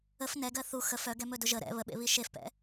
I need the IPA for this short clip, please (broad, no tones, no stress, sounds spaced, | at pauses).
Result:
ə f n ɛ ɡ ɜ θ u x ə f œ ɡ ɛ m ɵ d ʊ ʒ ə ɾ ɛ̰ β ə ɓ ḛ β i ʃ e f p ɛ̰